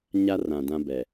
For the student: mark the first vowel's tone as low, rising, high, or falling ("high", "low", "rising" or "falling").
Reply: high